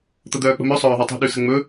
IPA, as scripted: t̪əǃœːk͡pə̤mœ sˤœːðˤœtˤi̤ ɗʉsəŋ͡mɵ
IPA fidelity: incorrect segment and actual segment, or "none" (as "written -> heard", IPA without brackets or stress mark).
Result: ǃ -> d̪